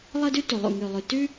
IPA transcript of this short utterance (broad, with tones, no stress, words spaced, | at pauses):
lˠɤ˥dʉ˥tu˨ lˠṵ˦˨ŋʉ˦˨lˠʉ˦˨ tʉ˥